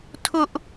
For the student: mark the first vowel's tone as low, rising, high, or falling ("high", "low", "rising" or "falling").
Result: high